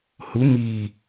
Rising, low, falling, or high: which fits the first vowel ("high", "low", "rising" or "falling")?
rising